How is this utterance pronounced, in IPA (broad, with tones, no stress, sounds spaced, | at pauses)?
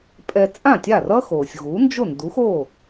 pʼ ɛ˧ t͡sʼ ã˥˩ tʲ a˥˩ r ʌ˥ x oː˩ sʲ ɣ u˩˥ n d͡ʒ o˥˩ n d u˩˥ x o˥˩